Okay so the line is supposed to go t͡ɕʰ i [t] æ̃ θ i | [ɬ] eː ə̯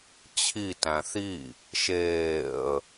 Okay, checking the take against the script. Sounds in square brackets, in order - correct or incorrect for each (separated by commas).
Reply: correct, incorrect